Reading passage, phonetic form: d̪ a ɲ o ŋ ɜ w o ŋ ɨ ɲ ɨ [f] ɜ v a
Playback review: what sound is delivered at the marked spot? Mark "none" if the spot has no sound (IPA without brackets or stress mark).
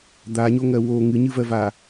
v